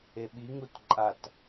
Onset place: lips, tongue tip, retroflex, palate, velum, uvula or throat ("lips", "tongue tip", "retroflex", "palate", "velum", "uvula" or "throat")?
lips